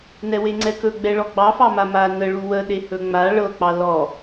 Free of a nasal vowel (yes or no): yes